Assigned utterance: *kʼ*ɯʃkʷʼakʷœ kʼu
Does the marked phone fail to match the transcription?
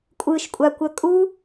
yes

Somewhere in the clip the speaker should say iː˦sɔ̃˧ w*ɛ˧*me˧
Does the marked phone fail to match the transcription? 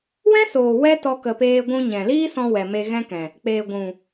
yes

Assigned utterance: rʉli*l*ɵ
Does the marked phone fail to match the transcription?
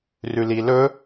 no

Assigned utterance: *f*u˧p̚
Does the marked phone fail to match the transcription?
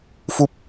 no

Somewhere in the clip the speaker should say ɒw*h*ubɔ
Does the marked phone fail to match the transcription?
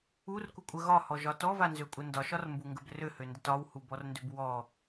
no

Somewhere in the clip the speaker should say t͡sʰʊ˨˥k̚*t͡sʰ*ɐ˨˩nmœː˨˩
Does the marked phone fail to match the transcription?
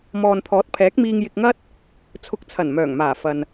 no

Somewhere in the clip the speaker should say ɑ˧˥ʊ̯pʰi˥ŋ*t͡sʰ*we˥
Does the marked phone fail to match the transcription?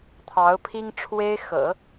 yes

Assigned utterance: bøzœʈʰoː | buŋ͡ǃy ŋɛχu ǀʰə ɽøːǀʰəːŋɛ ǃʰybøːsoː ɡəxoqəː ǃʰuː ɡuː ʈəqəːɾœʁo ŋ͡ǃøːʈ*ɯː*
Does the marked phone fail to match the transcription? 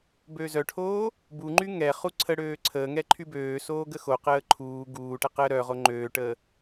yes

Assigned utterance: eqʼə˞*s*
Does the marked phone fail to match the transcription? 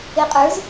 yes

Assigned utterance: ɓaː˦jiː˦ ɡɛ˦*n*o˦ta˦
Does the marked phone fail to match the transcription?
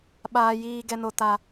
no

